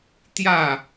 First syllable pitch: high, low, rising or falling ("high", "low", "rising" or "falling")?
falling